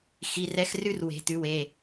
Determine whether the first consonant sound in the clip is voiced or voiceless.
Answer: voiceless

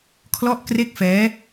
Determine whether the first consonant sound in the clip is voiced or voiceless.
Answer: voiceless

